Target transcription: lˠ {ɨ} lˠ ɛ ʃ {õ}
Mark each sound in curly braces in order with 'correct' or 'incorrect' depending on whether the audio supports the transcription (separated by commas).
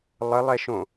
incorrect, correct